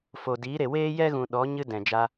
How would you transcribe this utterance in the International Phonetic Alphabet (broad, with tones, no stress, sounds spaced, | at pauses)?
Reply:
f o˨ d iː˨˦ ɾ e˨ w eː˦ j ɛ˦ ɣ ũ˨ ɗ ɔ˨˦ ɲ ɨ˧ d ɛ̃˨ d͡ʒ a˦